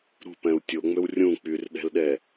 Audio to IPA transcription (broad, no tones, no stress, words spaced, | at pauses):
ɾṳpɛ̃u̯ tʲoŋ͡møw rʲũ k͡pyrɗɛ̤lɗɛ